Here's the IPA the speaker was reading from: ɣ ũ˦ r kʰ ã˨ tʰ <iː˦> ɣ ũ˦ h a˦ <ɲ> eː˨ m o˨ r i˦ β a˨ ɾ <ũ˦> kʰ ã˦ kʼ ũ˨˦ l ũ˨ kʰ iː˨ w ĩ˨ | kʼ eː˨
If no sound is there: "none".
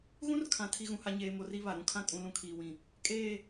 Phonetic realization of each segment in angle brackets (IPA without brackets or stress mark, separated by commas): i˦, ɲ, ũ˦